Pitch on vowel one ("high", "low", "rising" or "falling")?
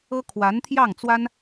high